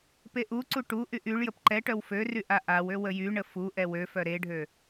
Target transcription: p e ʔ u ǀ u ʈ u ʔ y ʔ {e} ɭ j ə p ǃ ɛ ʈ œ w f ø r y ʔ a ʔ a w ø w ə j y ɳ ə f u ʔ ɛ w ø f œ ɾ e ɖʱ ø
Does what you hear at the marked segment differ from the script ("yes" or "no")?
yes